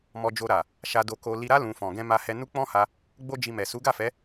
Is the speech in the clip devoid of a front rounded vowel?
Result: yes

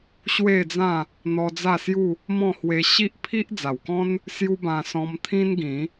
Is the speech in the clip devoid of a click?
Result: yes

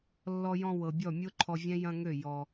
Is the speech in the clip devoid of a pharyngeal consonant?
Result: yes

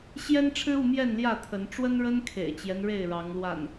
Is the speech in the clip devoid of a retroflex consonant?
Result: no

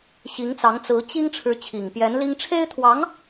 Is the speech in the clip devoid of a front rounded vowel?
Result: yes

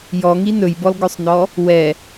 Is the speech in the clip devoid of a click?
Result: yes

